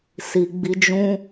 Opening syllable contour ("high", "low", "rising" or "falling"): low